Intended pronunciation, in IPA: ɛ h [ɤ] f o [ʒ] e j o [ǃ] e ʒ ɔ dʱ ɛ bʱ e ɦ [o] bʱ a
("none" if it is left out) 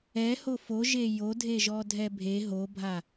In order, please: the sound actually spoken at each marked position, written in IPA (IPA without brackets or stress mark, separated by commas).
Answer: o, ʒ, dʱ, o